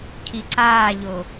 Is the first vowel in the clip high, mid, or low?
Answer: high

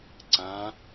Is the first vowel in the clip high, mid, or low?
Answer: low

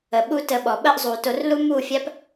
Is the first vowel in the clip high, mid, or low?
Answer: mid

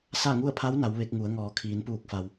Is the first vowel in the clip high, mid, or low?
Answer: low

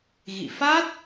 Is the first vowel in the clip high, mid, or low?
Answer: high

